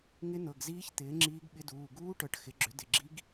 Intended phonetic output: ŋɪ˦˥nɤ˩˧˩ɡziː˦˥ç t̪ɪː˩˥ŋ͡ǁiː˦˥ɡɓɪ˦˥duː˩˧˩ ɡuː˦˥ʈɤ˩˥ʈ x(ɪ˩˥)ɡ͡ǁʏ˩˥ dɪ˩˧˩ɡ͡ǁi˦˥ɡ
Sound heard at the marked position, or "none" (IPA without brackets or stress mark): ɪ˩˥